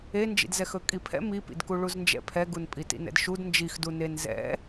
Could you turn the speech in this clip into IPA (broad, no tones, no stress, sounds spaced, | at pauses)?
e n d͡ʒ ḭ d z ɛ x ɵ kʼ i pʰ ɛ̰ m i p ḭ d k u ɭ u z n d͡ʒ ɛ̰ pʰ ɛ ɡ u n pʼ i t ḭ n ɛ̰ d ʃ u d n d͡ʒ i x d u n e n z ɛ̰